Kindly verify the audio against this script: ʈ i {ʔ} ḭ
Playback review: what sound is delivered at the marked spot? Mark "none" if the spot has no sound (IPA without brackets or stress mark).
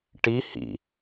h